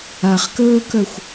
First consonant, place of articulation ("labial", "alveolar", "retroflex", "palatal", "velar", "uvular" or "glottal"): uvular